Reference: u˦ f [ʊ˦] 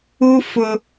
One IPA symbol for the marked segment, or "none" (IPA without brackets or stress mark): ʊ˦